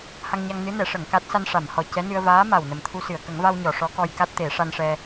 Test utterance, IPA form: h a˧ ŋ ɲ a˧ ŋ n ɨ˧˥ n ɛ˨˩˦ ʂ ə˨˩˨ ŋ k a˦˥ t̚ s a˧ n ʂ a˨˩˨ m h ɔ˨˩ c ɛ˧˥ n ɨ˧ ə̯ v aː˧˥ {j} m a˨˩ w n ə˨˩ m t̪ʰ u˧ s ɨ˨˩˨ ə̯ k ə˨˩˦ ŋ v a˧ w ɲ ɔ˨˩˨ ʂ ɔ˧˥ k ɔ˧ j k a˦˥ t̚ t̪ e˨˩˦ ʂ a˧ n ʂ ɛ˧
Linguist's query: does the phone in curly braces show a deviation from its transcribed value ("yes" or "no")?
yes